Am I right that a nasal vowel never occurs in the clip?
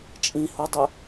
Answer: no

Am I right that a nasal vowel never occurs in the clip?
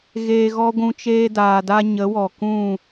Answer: no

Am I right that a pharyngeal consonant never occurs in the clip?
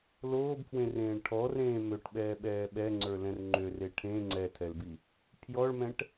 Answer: yes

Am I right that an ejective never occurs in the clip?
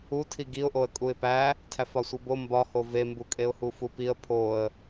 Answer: no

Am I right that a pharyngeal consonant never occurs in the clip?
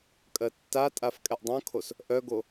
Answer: yes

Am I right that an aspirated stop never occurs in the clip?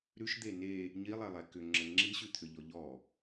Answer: no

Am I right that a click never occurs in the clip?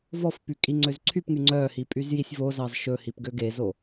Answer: no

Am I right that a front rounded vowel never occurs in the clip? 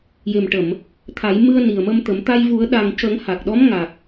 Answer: yes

